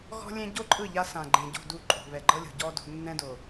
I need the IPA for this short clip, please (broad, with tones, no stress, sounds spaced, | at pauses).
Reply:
ɣ ɔ̤˦ lʲ ẽ˦ ɟ o˦ ǃʼ ɯ˦˨ ʎ a˦ s ã˨ ɡ͡ǃ ẽ˨ ɟ o̤˦˨ d u˦˨ ǃʼ o̤˨ β ɛ˨ ɡ͡ǃ ɤ˦ lʲ o̤˨ ɟ ɔ˦ d o̤˦ nː ɛ̃˦ d o˨